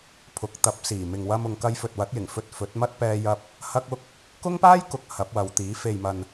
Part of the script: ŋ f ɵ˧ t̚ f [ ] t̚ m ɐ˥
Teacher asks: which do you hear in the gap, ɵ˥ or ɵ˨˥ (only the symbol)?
ɵ˨˥